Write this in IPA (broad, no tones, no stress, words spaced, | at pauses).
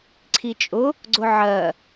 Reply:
ǀʰit͡ʃʼʊ | ɡ͡ǀʊʕɜ